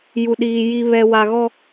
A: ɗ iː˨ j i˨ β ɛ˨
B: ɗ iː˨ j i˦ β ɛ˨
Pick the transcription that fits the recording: A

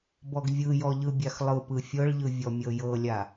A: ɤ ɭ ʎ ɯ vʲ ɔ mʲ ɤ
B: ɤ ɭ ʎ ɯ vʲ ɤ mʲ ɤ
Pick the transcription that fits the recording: A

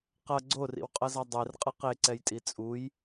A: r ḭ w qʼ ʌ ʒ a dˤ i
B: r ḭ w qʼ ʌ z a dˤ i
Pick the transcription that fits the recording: B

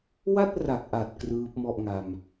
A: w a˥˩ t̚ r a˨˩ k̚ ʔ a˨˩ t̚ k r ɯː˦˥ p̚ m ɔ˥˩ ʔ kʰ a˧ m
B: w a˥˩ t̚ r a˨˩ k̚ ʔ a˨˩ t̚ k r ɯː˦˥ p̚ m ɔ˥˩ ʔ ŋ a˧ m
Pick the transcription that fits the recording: B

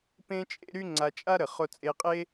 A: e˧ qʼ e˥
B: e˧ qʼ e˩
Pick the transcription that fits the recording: A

